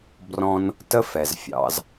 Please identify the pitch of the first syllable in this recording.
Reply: high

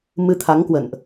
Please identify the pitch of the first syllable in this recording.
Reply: rising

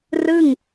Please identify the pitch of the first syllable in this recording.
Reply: falling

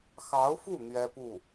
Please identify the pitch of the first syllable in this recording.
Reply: rising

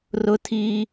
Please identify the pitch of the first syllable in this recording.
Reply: high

